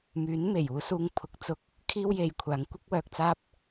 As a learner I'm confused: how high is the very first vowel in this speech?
high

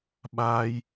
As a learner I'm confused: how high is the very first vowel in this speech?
low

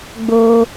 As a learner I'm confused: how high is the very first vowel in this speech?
mid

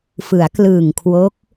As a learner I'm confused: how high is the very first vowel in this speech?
high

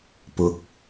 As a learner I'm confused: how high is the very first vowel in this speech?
high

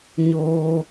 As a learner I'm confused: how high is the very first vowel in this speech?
mid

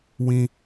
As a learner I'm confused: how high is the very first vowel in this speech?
high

